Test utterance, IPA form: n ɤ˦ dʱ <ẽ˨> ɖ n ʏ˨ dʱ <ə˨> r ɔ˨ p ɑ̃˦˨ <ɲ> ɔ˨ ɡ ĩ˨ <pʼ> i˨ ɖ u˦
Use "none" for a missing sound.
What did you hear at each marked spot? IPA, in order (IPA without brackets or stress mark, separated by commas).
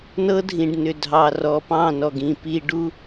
ĩ˨, ɑ˨, n, p